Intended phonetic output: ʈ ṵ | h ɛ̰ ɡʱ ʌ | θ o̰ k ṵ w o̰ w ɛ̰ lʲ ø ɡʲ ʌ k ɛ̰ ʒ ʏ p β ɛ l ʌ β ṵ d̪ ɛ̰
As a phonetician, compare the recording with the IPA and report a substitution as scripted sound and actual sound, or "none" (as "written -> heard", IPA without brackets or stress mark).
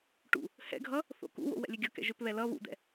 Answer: none